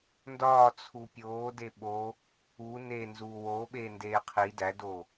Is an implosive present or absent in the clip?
present